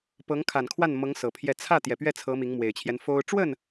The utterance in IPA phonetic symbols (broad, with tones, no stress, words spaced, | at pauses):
pɤ˧˥ŋkʰa˨˩nkʰwa˥˩nmɤ˧˥ŋ sɤ˨˩pʰjɛ˥˧ t͡sʰä˥˩ t̪jɛ˨˩pɥɛ˥˩ t͡sʰɤ˧˥ mi˧˥ŋmwe˨˩ɪ̯t͡ɕʰjɛ˦n fo˥ʊ̯ ʈ͡ʂwə˥˩n